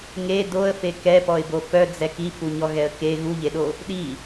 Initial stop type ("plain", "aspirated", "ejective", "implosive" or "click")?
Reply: plain